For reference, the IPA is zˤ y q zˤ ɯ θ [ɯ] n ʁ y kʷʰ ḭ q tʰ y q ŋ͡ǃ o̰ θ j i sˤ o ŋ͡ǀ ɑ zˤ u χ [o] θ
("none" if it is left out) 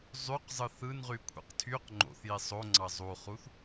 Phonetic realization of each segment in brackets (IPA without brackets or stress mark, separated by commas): ɯ, u